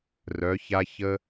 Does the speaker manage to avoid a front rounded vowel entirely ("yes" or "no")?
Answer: no